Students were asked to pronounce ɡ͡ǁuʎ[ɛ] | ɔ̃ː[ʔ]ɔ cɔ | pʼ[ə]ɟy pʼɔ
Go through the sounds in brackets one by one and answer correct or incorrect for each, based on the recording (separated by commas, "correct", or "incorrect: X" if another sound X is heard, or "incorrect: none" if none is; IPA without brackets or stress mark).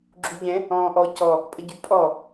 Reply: incorrect: ɛ̃, correct, correct